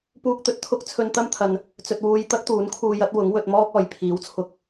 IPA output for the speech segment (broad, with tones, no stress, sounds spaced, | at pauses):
p uː˧ k̚ t̪ ɵ˨ t̚ t̪ʰ ʊ˥ k̚ t͡sʰ ɵ˧ n t̪ ɐ˥ m t̪ʰ ɐ˨ n | t͡s ɵ˨ t̚ w uː˧ j t̪ ɐ˥ k̚ t̪ uː˨˥ n kʰ uː˧ j ɐ˨˥ t̚ w ʊ˨˥ ŋ w ɵ˧ t̚ m ɔː˥ k̚ ɔː˨˩ j pʰ iː˨˥ w t͡sʰ ʊ˨˥ k̚